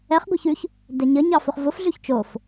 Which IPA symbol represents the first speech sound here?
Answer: ɛ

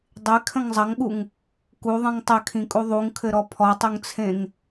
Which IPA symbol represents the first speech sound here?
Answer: dˤ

